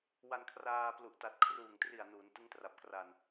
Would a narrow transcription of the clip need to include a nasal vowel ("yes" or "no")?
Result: no